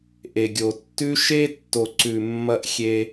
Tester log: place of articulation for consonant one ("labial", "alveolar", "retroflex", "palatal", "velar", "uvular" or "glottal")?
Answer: glottal